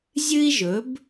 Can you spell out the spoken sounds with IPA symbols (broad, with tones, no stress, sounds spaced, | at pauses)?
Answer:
zʲ ɨ˥ i̯ ʒ ɵ˩˥ b